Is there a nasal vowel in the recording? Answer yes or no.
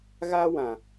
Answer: yes